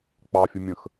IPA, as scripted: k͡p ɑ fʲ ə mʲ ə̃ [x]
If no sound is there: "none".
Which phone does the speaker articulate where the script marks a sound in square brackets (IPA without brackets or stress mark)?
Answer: x